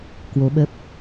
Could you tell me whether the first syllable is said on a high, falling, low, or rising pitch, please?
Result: rising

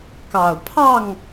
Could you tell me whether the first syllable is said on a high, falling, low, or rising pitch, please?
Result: low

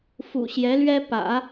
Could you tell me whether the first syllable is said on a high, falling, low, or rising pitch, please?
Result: low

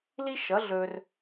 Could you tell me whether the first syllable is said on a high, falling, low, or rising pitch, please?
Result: high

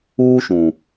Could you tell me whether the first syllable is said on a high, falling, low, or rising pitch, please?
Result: high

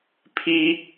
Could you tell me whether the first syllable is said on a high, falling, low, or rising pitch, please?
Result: high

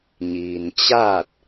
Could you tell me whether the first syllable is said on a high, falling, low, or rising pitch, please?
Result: low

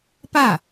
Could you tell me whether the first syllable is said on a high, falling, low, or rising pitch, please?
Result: falling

